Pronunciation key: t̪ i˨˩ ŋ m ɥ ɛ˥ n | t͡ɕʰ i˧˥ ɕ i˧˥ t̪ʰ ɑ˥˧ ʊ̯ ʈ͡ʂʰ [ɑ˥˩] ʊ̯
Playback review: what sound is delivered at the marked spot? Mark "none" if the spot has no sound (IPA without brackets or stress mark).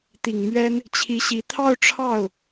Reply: ɑ˥˩